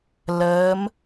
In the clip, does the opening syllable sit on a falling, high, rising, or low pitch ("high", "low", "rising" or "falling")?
rising